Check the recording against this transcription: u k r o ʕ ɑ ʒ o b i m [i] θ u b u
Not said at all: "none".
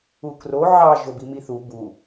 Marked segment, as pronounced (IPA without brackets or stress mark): i